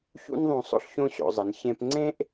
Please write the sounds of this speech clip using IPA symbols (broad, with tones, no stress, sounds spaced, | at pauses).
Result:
ç ṵ˥ n ðˤ õ˧ sˤ o̰˥ ɬ ç õ˥ ɕ o̰˩˧ zˤ ɘ˩˧ n ç ẽ˧ p ŋ͡ǀ ẽ˥ ʔ